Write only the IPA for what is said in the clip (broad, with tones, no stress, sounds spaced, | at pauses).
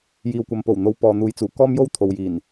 j iː˨ w kʷ ɐ˨ m p o˨˩ w n̪ o˨˧ w p ɔː˨ n̪ uː˨˧ j t͡s uː˨˩ k ɔː˥ m j o˥ w t̪ʰ o˨ w j iː˨˩ n